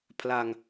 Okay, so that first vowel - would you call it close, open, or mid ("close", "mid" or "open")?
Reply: open